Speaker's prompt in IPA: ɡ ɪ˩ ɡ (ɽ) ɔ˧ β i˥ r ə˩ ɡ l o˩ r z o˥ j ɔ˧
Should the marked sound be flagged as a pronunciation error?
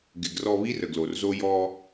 yes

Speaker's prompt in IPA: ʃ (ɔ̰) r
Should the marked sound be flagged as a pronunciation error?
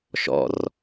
no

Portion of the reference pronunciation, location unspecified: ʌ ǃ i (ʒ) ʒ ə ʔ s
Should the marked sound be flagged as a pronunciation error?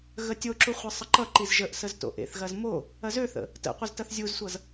yes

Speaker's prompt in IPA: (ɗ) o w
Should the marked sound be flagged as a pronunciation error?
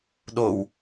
no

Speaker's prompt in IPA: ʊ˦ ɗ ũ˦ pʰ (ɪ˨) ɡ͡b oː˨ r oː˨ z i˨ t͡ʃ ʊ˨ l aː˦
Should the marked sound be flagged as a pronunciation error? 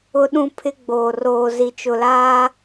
yes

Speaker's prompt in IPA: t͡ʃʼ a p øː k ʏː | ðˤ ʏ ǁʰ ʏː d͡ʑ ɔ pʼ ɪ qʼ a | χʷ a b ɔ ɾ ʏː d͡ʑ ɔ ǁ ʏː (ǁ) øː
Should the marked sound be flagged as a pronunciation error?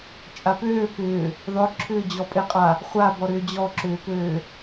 yes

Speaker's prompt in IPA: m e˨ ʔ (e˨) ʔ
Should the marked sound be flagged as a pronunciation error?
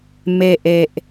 no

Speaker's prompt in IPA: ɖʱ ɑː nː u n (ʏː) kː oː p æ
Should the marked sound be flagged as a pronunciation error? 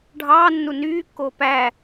yes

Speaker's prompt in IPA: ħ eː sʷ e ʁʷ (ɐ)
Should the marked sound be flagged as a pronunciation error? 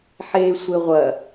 no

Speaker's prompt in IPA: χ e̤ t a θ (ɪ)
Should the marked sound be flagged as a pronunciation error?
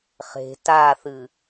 yes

